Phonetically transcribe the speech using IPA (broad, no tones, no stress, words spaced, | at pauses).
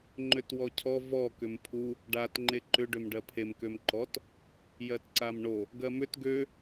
ŋ͡ǃøtwɔcʰɔ vɔ kʏmpʰu | ɖat ŋ͡ǃeǃʏ ɖømɖɜpʰem kømǃɔt | jɜtǀamɳo | ɡɜmʏt ɡø